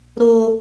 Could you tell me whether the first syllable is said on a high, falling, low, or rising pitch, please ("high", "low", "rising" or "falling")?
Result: high